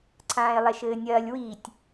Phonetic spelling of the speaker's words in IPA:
ǀʰ ãː e̯ lˠ ɛ ʃ ɘː nʲ ɐː lʲ w i tʲ

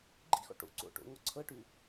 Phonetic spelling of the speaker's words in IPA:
ɡ͡ǃ ḭ x ɔ̰ ʈ o̰ ǀ o̰ ʈ o̰ ŋ ɔ ǀʰ ɤ ʈ ʉ

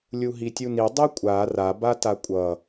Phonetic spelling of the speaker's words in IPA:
lʲ u ɦ i tʲ u n i dˤ i kʷʼ a r a b a t a kʷʼ ʌ

